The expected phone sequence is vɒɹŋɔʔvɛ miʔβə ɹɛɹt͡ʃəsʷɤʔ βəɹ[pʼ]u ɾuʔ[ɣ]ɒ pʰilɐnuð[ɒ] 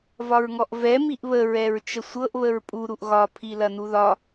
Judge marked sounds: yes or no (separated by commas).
yes, yes, yes